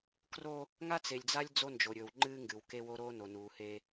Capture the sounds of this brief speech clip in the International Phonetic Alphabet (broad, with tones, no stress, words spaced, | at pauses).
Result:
kro˦ | ŋa˦t͡se˨lʲd͡za˦lʲ d͡zo˦nd͡ʒo˨ɾʲɵ˨w ŋ͡ǃɨ˦ ŋɡɨ˨wke˦wo˦ ɾoː˦no˨nuː˨he˦